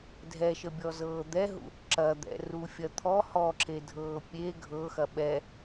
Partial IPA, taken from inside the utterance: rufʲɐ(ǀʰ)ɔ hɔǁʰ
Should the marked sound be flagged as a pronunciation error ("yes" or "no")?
yes